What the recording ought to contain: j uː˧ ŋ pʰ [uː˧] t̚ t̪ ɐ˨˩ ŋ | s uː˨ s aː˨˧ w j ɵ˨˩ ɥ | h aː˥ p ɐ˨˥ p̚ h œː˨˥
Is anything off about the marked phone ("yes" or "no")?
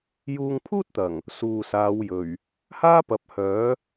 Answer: yes